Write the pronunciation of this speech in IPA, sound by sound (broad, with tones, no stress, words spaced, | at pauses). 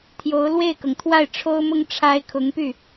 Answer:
t̪ʰjo˧˥ʊ̯ lwe˥˩ɪ̯kɤ˩ŋt̪ʰwa˥˩ɪ̯ ʈ͡ʂʰo˥ʊ̯mʊ˥ŋ ʈ͡ʂʰa˥ɪ̯ kʰʊ˧˥ŋpy˥˩